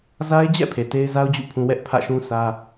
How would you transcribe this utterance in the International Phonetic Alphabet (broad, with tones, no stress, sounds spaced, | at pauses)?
z a˦ ɪ̯ d͡ʑ ɛ̰˦˨ pʰ e˨ t e˦ ɪ̯ z a˦ ʊ̯ d͡ʑ ṵ˦˨ pʰ ũ˦ w ɛ˦ ʔ pʰ ä̰˦˨ ʃ ũ˦ sʰ ä˦